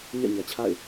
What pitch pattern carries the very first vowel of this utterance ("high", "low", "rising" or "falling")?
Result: falling